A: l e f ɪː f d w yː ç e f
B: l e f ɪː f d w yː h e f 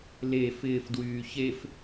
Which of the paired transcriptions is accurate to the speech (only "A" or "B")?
A